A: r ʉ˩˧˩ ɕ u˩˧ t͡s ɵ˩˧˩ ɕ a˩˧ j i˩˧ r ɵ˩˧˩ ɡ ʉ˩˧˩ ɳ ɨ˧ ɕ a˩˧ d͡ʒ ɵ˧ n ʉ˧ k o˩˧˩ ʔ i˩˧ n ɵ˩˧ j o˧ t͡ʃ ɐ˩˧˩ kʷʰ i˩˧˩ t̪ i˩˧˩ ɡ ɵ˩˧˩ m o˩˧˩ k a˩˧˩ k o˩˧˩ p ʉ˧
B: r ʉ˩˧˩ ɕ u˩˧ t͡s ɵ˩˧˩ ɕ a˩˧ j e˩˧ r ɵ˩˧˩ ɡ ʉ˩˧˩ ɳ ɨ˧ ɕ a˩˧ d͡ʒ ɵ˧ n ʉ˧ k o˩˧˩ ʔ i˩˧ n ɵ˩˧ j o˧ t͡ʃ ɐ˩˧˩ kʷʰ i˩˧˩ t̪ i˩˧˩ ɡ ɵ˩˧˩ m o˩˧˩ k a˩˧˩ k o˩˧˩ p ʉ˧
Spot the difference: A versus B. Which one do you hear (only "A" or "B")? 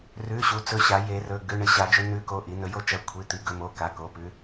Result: B